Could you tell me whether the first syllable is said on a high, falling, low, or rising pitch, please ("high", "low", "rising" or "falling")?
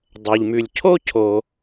low